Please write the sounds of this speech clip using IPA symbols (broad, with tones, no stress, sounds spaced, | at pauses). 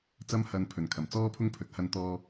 t͡s ɐ˧ m h ɐ˨˧ n pʰ ɵ˨˩ n kʰ ɐ˨˩ m t͡s ɔː˥ pʰ ʊ˥ ŋ pʰ ɵ˨ t̚ h ɐ˧ n t̪ ɔː˧